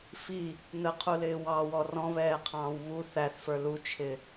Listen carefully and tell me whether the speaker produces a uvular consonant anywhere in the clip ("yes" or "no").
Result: yes